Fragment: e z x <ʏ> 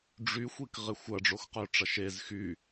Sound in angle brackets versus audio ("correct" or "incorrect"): incorrect